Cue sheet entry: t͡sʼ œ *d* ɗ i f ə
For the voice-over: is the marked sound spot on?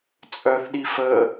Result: no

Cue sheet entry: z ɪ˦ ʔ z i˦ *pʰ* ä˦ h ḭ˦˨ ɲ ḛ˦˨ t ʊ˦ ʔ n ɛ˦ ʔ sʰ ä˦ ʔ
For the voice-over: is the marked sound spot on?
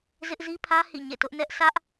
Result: yes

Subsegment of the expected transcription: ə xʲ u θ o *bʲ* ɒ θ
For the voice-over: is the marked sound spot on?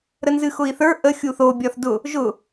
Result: yes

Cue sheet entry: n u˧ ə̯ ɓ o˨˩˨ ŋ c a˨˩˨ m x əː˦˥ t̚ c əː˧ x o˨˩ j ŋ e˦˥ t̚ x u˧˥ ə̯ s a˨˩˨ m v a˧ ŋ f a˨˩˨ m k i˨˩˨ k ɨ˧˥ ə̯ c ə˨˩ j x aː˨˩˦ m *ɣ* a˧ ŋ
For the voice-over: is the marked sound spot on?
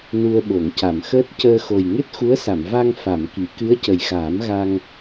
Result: yes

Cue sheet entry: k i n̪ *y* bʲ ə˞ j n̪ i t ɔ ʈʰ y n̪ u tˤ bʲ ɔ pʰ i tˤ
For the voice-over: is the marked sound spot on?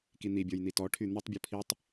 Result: no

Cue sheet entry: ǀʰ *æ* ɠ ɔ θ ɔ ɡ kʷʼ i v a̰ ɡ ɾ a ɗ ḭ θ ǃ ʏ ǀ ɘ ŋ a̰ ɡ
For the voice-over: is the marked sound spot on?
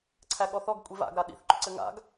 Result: yes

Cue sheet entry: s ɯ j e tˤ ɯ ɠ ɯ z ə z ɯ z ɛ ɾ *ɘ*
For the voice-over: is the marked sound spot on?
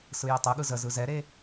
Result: no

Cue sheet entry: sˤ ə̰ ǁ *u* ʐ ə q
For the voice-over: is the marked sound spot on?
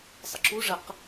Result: yes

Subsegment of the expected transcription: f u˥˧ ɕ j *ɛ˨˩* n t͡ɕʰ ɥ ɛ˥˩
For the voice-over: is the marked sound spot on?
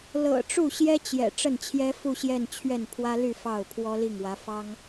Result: no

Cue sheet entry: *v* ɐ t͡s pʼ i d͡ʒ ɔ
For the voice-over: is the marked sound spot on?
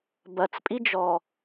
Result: no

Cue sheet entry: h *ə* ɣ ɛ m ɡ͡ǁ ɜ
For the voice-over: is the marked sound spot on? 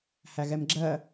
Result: no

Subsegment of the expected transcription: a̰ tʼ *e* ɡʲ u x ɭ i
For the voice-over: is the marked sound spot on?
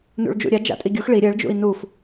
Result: no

